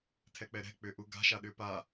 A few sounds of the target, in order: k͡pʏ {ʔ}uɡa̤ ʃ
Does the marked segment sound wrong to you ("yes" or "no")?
no